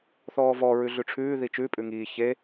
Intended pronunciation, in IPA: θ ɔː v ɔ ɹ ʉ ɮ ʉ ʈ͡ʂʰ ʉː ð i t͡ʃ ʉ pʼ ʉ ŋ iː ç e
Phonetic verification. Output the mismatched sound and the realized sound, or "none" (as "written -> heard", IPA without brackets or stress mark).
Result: none